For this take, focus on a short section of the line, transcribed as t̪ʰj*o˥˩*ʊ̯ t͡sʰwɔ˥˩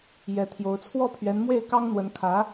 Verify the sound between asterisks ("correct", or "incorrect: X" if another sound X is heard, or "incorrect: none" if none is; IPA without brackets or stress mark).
incorrect: o˧˥